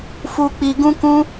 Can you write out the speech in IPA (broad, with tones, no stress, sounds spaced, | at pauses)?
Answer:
f u˦ k͡p i˧ ɡ ũ˦ k ũ˦